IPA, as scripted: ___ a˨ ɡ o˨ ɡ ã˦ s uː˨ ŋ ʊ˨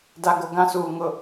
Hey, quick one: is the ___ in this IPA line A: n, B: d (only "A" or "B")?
B